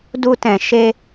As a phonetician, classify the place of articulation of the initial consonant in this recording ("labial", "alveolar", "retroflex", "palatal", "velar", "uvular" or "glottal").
alveolar